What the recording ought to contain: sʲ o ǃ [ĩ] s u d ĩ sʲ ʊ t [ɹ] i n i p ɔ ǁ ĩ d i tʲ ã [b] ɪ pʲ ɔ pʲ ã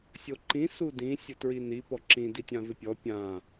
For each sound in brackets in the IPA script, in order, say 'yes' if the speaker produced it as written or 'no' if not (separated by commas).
yes, yes, no